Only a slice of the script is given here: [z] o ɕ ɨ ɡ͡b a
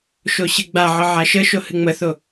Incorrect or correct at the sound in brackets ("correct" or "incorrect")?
incorrect